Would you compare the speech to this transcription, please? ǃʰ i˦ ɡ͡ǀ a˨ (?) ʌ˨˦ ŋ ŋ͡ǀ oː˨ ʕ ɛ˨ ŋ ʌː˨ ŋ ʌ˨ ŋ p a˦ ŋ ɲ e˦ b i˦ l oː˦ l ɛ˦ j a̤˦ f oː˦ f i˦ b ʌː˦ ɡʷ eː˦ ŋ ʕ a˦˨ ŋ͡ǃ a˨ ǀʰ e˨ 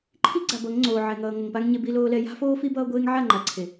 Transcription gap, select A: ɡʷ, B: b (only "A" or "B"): B